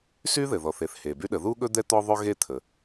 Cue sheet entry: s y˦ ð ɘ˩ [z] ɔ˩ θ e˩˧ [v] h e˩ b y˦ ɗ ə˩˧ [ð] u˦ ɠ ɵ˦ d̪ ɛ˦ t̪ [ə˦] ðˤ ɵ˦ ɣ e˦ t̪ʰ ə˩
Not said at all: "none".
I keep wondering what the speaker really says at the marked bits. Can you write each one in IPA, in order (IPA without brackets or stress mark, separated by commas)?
ð, θ, ð, ɔ˦